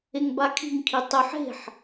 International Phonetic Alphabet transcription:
eŋbakʰi̤ŋkʰi tˤʉħ e̤ħ

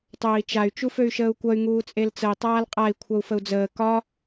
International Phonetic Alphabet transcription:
tˤɵːi̯t͡ʃay̯ t͡ʃuføy̯ʃəːu̯kʷʌy̯ ŋuːt͡sʼelt͡səi̯ tˤaːlqʼai̯ kʷʰʌu̯fəu̯d͡zəː kɒ

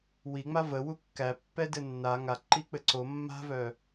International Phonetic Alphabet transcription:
wiŋ͡ma vəwu kːæpːɛdɘ nːa ŋaǃik͡pɘ ǀo mːa̤vœ

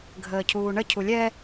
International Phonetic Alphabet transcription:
ɡʱəːcʰuːɳə cʰulʲɛ

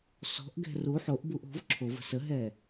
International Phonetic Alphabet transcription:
sɔ̤ʔɡɛ̤ ru ħoʔbuʔ o̤v ǁʰovə̤ səɦɛ

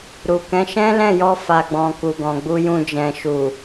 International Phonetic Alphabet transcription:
ɾu˨kɛ̃˨˦ ʃɛ̃˦lɛ̃˦˨ jɔ˧fa˨ɡ͡bɔ̃˨ ku˨ɡɔ̃˨ɡ͡bu˧jũ˧ d͡ʒɛ̃˨ʃu˨

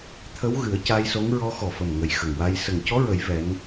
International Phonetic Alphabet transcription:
t̪ʰə˧˥w ɣɨ˨˩˦ə̯ca˧jso˧˥ŋ ɹɔ˧˥xɔ˨˩fə˨˩mŋə˨˩j xə˨˩ŋwa˧j sə˨˩ŋcɔ˧˥ɹə˨˩˦j vɛ˧˥n

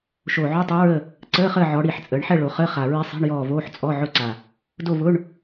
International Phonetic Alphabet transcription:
ʃo˨˩ʕo˧˥˧tˤo˧˥ɹə˦˨ | ǀəː˧˥˧χəː˦˨ʕɔ˩˧ɽi˨˩ħ t͡sʼəː˩˧ɳħɛ˦˨ɭo˩˧ χəː˧˥˧χa˨˩ ɹi˧˥sˤi̤˧˥˧ɳjɔː˦˨voː˧˥˧ħ t͡sʼɔ˧˥˧ ʕʊ˦˨ǀa˨˩ | do˦˨vʊ˧˥˧ɳ

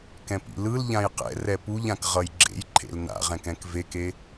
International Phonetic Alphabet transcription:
kɛ̃pḭlɯl ʎãjqɛ̰ rɛpuʎãk ʁʌjɡ͡ǁḛjǃʰḛl na̰ʁɛ̃k ɛ̃kveke

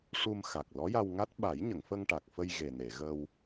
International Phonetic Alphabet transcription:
ʂu˧mxa˨˩k̚ lɔ˧˥ja˧wŋa˦˥t̚ ɓa˨˩˦jɲə˨˩˨ŋfə˧ŋ ʈa˨˩k̚fə˧j ɣe˨˩ne˨˩˨ ɣə˧w

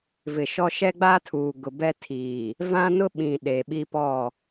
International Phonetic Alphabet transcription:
vɪ˨ʃɔ˦ ʃɛ˦ɡ͡ba˦ tʰuː˨ɡʊ˨bɛ˦ tʰiː˨ | vã˦nʊ˦ɓĩ˨ ɗe˨ɓi˦pɔ˦˨

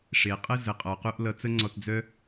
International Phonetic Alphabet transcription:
ʂe˩qʼə˥ zə˩qʼɔ˩qu˧ʔ lʌ˧ t͡sə˥ŋ͡ǀɔ˧td͡zœ˥

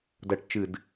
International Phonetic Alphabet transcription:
dɐ˨˦ʈ t͡ʃɨ˧˩˧d

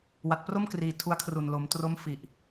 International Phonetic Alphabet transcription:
wa˨˩t̚pro˥˩mkriː˨˩ tʰu˧a̯kʰru˨˩nlo˩˦m tro˦˥mfi˨˩ʔ

